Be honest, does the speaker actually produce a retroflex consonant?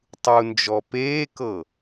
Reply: no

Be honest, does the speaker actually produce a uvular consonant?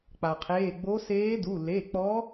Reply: yes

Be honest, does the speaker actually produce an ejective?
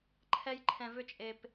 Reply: yes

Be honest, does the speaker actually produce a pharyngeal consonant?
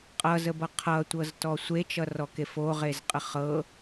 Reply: no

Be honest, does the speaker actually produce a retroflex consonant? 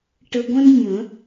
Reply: yes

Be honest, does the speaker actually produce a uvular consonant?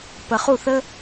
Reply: yes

